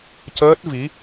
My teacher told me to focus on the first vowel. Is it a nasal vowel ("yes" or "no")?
no